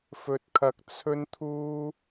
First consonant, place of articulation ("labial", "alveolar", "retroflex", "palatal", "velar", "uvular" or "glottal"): labial